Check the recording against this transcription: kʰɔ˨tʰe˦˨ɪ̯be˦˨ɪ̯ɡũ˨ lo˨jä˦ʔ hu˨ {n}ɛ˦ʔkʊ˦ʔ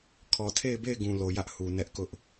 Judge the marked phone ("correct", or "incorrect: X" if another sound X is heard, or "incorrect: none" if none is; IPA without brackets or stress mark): correct